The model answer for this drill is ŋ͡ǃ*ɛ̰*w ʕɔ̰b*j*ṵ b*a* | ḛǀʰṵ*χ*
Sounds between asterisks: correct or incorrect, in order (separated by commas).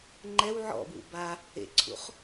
incorrect, incorrect, correct, correct